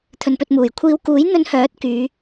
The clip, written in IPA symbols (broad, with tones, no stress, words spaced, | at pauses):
t̪ʰɵ˨npɵ˧t̚muː˨˩jkʷʰiː˧w kuː˨˥jn̪ɵ˧nhœː˨˥t̚ kyː˨˧